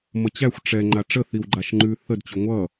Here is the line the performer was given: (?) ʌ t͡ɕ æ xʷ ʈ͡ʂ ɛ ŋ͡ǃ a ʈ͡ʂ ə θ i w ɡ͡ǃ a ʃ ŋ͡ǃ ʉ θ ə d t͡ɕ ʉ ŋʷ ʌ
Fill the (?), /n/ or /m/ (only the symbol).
m